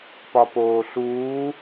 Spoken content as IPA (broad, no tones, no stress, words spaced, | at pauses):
pɒpoːɬuː